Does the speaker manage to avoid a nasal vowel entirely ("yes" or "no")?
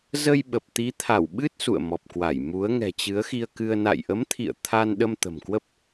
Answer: yes